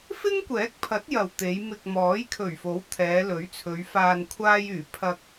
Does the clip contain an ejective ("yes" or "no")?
no